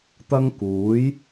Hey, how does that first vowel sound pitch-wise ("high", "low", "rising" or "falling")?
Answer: high